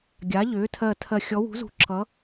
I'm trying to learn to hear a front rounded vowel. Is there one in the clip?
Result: yes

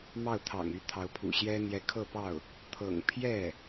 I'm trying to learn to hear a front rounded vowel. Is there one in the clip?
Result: yes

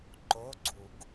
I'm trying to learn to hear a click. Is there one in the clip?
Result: yes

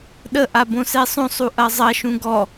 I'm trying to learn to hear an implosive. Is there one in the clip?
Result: yes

